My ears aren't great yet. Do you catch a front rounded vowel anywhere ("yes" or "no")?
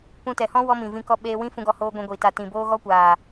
no